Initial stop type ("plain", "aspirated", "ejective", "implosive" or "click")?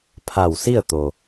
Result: aspirated